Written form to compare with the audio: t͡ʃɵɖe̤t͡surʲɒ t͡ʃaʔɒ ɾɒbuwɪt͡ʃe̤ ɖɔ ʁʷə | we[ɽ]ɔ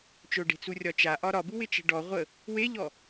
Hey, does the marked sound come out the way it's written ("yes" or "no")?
no